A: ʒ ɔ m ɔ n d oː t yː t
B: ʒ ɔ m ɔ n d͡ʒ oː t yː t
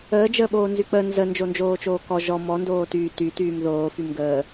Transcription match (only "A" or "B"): A